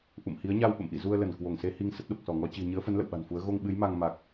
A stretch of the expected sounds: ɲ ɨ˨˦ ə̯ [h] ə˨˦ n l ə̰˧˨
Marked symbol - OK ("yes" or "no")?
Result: no